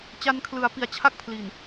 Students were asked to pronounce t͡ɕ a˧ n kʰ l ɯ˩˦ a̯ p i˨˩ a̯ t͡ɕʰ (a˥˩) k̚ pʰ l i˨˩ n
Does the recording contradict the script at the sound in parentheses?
no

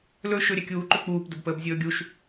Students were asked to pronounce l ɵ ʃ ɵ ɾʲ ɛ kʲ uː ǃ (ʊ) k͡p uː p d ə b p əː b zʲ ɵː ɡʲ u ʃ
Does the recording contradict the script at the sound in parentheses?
yes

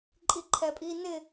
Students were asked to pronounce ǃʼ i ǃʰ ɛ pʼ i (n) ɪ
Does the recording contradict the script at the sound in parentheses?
no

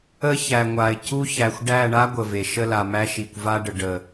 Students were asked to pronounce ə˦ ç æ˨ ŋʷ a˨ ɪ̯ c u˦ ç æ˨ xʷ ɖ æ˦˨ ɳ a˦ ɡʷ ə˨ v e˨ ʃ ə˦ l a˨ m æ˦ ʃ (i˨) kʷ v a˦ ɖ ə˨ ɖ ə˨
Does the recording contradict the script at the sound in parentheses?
no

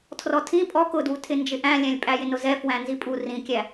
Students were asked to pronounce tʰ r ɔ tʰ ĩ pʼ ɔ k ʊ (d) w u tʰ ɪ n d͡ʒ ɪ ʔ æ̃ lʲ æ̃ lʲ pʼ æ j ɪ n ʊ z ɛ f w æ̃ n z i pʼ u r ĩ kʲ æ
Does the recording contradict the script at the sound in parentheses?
no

